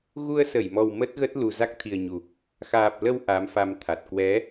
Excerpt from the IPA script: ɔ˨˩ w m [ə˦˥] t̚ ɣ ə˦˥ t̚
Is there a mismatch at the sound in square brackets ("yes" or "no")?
no